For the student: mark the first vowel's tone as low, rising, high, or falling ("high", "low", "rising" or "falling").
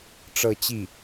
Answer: falling